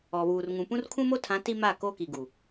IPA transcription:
ɔ˨ β uː˨ r ŋ ũ˨ p ũ˦ r kʰ ũ˦ m o˦ tʰ ã˨˦ t i˦ m a˦˨ k o˦ k i˨ ɡ u˨

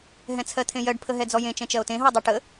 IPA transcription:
ɦ ɛ̃ t͡sʰ ɜ t̪ʰ ẽ j ɜ ɖ pʰ ə ɦ ɛ d͡z ɔ j ẽ t͡ʃ ɛ̃ t͡ʃ ɜ o̯ t ẽ ɦ ɔ dˤ e ʈ ə

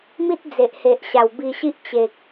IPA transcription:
m i˦ t̚ d͡z e˨ ʔ h e˨ ʔ ɕ a˨˩ w b i˧ ɕ i˦ ʔ t͡ɕ e˨ k̚

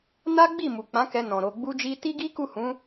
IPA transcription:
n a˦ ɡ͡b i˦˨ m u˨ k͡p ã˨˦ k ɛ˧ n ɔ̃˨ ɾ o˨ ɡ͡b u˧ d͡ʒ i˧ t i˦ ɡ i˦ k u˦˨ h ũ˨˦

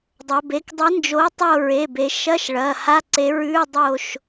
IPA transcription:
dˤ ɐ˩˧ b e˩˧˩ k dˤ ɨ˨˥ n d͡ʒ o˨˥ tˤ o˦˨ ɹ e˩˧˩ b e˩˧ ʃ ɐ˧˥˧ ʃ ɭ ɐ˩˧˩ h a˧˥˧ ǀ e˨˥ ɹ ʉ˧˥˧ dˤ o˦˨ ʃ

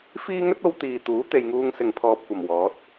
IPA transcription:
f iː˥ ŋ ɵ˥ t̚ o˧ w t̪ iː˨ t̪ uː˨˥ t̪ e˨ j ŋ uː˧ ŋ s ɪ˨ ŋ pʰ ɔː˨ p̚ kʷ ɐ˨˩ m w ɔː˨˥ t̚

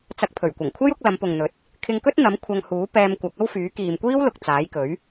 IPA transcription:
t͡s ɐ˧ k̚ pʰ ɵ˨˩ ɥ kʷ ɐ˨˩ ŋ kʷʰ ɐ˥ j ʊ˨˥ k̚ l ɐ˨˧ m p ʊ˨ ŋ n̪ ɵ˨˥ t̚ | kʰ ɪ˧ ŋ k ɵ˥ t̚ n̪ ɐ˨˥ m kʷʰ ɐ˧ ŋ h uː˨˥ p ɛː˧ m kʷ ɐ˨˥ k̚ ɐ˥ w f yː˨˥ k iː˨ m kʷ iː˥ w l ʊ˨ k̚ t͡s aː˨˥ j k ɵ˨˥ ɥ

